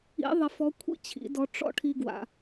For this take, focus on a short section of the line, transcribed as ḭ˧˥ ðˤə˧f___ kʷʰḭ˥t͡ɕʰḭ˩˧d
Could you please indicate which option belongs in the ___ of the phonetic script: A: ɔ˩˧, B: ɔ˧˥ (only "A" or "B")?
B